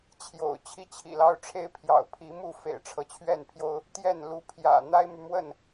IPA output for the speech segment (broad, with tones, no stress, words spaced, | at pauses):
t͡ɕʰjo̰˨˩ʊ̯ t͡ɕʰi˥˨t͡ɕʰḭ˨˩lɑ˦ʊ̯ʈ͡ʂʰe˦ɪ̯ pʰjɑ̰˨˩ʊ̯pʰi˨˦mu˥˨ fḛ˨˩ɪ̯ʈ͡ʂʰɤ˦t͡ɕʰɥɛ˥˨npʰjo˦ʊ̯ | t̪jɛ˥˨nlu˥˨ pʰjä̰˨˩n̪a˦ɪ̯my˨mwə˥˨n